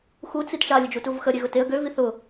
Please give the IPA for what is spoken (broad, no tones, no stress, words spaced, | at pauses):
xu t͡sitʃa lʲəd͡ʒutuvxə ɾʲeɣʊteə̯ ɡø viθʊ